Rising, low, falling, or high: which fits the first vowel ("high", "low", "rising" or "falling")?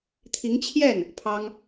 rising